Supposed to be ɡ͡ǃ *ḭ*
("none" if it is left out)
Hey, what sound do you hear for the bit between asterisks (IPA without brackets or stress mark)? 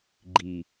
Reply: i